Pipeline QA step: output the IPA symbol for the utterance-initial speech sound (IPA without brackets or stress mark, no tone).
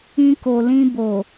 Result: ĩ